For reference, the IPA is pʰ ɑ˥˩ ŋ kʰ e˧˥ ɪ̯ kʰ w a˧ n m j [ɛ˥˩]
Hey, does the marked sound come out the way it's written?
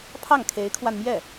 yes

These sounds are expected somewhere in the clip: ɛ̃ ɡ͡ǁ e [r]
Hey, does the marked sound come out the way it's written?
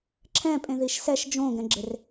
yes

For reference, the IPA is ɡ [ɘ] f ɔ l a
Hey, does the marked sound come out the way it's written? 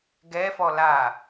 no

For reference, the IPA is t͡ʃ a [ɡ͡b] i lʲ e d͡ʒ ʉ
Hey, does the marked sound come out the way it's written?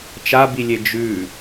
no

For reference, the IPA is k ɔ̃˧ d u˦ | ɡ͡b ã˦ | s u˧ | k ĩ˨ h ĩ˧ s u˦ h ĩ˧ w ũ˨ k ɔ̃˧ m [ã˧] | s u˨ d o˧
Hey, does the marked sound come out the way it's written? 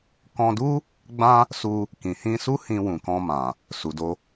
no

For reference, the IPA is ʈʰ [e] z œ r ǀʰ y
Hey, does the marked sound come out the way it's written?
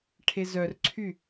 yes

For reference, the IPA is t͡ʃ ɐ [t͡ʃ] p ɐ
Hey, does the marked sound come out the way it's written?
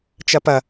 no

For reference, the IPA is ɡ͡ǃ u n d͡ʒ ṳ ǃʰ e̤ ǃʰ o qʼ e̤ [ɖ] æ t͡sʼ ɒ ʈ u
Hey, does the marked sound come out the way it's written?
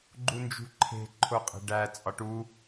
yes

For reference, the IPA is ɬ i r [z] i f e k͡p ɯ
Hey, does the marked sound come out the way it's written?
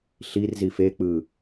yes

